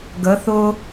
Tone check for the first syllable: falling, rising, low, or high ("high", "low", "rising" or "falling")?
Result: rising